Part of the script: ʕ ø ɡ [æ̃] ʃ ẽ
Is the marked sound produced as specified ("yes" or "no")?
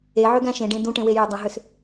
yes